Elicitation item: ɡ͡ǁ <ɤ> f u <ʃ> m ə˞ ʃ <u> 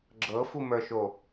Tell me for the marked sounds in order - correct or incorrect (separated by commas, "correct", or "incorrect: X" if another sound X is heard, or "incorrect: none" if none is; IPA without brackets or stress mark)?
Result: correct, incorrect: none, incorrect: o